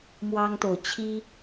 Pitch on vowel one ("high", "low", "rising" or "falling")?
high